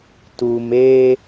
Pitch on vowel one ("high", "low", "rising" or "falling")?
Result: low